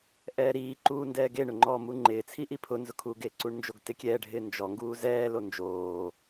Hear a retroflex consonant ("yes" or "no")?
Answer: yes